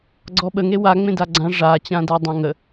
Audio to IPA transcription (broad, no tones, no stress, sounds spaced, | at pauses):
ɡ͡ǀ ɔ ɓ ə ŋ e w a ŋ͡m ẽ d a ɡ͡ǀ ã ʐ a t͡ɕ ã d a dˤ ã ŋ ə